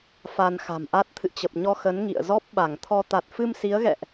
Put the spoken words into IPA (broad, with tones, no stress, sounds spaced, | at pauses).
f a˧ n x a̤˨˩ m ʔ a˦˥ t̚ t̪ʰ ɨ̰˧˨ t͡ɕ ə˨˩ p̚ ɲ ɔ˧ x ə˨˦ n ŋ ḭ˧˨ ə̯ z ɔ˦˥ p̚ ɓ a˧˩ ŋ t̪ʰ ɔ˧ t̪ a˨˩ t̚ f ɨ˧ m s i˨˦ ə̯ ɣ ɛ̰˧˨ ʔ